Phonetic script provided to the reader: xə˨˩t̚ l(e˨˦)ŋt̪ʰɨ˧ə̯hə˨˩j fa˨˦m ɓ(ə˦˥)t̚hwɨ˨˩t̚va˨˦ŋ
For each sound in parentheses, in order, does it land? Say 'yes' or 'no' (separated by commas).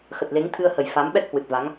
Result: yes, no